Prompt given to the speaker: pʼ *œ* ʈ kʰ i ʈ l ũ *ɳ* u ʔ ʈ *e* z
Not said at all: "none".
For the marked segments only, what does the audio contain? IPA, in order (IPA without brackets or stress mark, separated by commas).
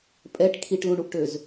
ɛ, ɳ, ø